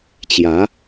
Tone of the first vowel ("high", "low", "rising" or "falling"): rising